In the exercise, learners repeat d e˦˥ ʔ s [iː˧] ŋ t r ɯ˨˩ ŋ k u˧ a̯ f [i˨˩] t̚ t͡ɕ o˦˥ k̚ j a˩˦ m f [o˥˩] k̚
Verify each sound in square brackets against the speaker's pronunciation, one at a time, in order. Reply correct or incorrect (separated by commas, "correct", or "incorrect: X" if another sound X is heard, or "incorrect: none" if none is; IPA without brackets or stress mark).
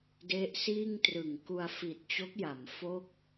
incorrect: iː˥˩, correct, correct